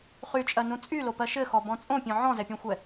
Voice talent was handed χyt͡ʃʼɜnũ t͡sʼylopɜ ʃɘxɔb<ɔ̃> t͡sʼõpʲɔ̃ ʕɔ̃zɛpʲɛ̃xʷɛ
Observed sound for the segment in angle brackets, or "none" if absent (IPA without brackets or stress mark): ɔ̃